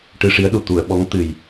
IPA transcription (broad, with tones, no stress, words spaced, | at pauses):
ʈɨ˧ ʂi˧˥ə̯ɗu˨˩ t̪u˨˩˨ə̯ ɓɔ˧˥ŋ t̪ɨ˨˩j